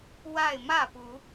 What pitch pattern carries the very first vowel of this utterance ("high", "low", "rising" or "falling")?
falling